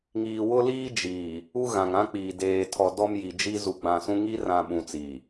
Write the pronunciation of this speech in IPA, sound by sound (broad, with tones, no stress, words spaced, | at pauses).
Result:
ŋiː˨wʊ˦liː˦ d͡ʒiː˨ | u˦ ɣã˨ŋã˦k͡piː˨ deː˨tʰɔ˨ dɔ˦mji˨d͡ʒi˦ zu˨ɡ͡bã˨sũ˦ ŋi˦rã˨ ɓũ˨t͡siː˨